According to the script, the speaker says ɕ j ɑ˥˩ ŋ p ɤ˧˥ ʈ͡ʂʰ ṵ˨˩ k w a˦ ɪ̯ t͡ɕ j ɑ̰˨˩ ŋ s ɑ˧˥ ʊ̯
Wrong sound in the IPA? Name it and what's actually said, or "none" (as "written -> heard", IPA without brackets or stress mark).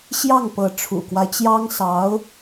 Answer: ɑ̰˨˩ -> ɑ˥